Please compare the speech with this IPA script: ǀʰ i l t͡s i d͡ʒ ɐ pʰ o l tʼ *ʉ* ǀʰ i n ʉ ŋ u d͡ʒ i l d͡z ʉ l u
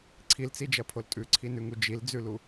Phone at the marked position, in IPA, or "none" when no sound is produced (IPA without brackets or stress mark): ʉ